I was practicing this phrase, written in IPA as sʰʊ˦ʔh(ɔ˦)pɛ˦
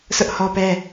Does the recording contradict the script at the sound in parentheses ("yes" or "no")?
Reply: no